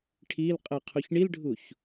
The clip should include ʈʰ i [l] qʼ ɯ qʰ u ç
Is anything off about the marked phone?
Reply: no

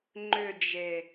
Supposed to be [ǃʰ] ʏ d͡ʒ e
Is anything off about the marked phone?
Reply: yes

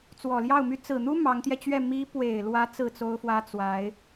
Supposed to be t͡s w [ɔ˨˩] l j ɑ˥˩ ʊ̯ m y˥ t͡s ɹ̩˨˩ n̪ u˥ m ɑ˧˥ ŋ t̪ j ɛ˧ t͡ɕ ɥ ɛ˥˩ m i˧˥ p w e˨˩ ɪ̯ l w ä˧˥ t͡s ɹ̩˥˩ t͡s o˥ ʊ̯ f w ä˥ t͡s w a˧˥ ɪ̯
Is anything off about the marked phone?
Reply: no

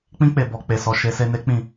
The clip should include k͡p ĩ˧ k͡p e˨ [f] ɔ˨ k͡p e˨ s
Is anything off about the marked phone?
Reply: yes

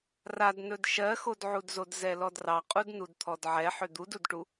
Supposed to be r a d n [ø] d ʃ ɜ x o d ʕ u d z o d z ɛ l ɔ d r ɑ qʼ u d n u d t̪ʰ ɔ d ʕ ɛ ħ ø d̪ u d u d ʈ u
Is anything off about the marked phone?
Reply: yes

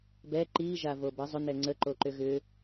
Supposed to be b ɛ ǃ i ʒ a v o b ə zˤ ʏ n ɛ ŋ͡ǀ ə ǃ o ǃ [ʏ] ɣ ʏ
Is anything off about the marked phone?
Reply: no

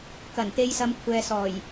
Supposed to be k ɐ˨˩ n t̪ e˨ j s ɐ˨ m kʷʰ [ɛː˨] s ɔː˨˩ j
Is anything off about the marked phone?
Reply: no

